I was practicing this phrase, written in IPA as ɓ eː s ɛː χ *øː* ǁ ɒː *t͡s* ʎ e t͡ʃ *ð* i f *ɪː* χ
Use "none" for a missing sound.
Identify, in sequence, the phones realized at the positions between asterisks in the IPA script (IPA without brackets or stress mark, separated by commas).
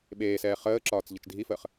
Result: əː, t͡s, dʱ, əː